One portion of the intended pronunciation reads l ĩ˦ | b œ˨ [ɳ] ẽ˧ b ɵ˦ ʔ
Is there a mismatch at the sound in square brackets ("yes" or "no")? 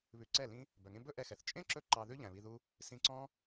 yes